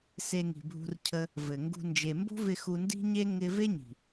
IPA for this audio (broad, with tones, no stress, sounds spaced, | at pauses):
s e˧ ŋ i̤˨ bʱ ṳ˧ r cʰ ə˧ | v ɘ˨ ŋ ɡ ṳ˧ n d͡ʒ e˨ m b o̤˦ v ɪ˧ x u˧ n d i̤˦ ɲ e˦ ŋ ɪ˧ v e˦ ɲ i̤˨